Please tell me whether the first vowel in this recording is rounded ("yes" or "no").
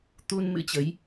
yes